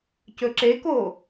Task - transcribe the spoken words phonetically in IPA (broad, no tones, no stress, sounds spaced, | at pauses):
c ɵ ǁ e k o